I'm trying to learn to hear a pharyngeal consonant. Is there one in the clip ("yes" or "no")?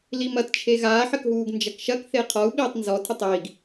yes